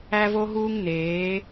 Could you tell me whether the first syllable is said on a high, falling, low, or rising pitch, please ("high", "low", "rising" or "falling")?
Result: high